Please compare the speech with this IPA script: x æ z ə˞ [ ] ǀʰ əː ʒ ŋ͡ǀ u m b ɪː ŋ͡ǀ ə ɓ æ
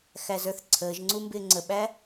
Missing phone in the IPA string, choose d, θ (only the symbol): θ